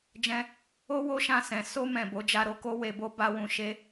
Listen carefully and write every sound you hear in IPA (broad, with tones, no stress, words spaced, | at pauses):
d͡ʒɛ̃˧ | o˧ wo˦ʃã˧sɛ̃˨ so˧mɛ̃˨ bo˨˦d͡ʒa˧ɾo˧ko˦ we˧bo˦ ba˦wũ˦˨ ʃe˧